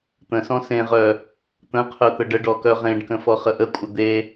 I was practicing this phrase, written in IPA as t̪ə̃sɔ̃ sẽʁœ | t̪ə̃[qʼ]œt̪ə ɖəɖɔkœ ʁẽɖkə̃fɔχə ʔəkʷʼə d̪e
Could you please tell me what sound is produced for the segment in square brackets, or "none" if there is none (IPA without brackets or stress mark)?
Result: qʰ